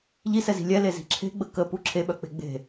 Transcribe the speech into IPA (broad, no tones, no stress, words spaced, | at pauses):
ʎisɛzi̤ lʲɛlezi̤ ǁʰe̤ɡ͡bə kəpu ǁʰeɓœk͡pe̤ ɡ͡be̤